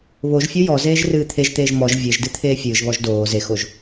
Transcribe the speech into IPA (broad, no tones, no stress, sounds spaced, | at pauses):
β o ʒ fʲ o j ɔ z eː ʒ r ɨː t̪ʰ e ʒ t̪ eː ʒ m ɔ ʒ vʲ e ʒ d ɨ t̪ʰ eː fʲ ɨː ʒ β ɔ ʒ d oː z e x o ʒ